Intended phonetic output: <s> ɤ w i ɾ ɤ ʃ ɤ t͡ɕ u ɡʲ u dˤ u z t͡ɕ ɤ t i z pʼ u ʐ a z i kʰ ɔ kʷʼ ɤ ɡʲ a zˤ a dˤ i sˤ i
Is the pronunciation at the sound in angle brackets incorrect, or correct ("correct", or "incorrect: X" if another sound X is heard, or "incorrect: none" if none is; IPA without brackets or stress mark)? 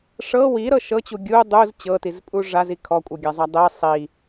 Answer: incorrect: ʂ